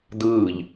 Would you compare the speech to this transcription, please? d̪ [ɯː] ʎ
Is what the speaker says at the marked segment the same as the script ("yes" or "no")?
yes